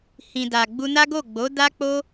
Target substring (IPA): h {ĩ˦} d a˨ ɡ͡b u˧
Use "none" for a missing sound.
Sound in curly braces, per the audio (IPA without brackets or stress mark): ĩ˨